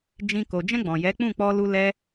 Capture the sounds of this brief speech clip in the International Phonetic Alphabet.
d͡ʒ ĩ˧ k o˨ d͡ʒ ɛ̃˧ ɡ͡b ɔ̃˨ j ɛ˨˦ k͡p ũ˦˨ k͡p ɔ˧ l u˧ l ɛ˧

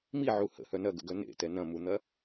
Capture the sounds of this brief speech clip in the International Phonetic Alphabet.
m i ʕ u h ə̰ h œ n ɐ ɡ ə̰ ɡ œ n ḛ t ɛ n ɐ̃ m u n̪ ɐ

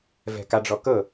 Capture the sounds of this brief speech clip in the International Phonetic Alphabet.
v ɛ̤ k a ɖ͡ʐ ɔ k ɤ

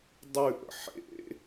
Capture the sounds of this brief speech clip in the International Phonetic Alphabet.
dˤ ʉ ʔ ə̰ ħ ḛ

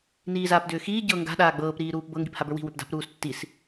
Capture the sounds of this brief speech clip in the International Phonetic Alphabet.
n iː z aː p d ʏː x iː ɟ ɤ ŋ ɡ a̤ ɗ aː ɡ͡b ɤː p ɾ iː ɾ uː p b ɤ ŋ ɡ i p h a b ə˞ w i̤ w ʏ p d a̤ p ɾ uː s tː i s

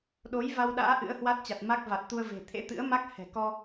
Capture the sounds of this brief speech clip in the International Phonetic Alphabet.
ɗ o˨˦ j v a˧ w ɗ a̰ː˧˥ ʔ ɨ̰˧˥ ə̯ h w a˦˥ t̚ t͡ɕ a˨˩ t̚ m a˦˥ k̚ v a˨˩ t̚ t̪ u˧ ə̯ v e̤˨˩ t̪ʰ ḛ˧˥ t̪ ɨ̰˧˥ ə̯ m a˦˥ k̚ h ɛ̤˨˩ k ɔ˧

